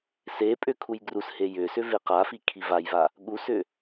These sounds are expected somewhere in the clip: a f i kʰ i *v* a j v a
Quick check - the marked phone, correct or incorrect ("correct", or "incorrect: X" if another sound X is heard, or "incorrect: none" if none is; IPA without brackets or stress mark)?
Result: correct